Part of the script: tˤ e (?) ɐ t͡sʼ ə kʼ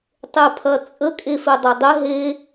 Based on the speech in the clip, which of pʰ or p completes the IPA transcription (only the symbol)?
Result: pʰ